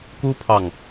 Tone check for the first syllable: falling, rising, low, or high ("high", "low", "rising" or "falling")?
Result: high